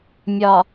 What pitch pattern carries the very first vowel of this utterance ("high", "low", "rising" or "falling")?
low